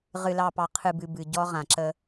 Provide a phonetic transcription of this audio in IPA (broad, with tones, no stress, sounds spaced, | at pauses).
ʁ ɨ˨ l ɑ˨ p ɑ˨ qʰ ɨ˨ b ɨ˨ b ɨ˨ ɟ ɔ˦ ʁ ã˨ ǁ ə˦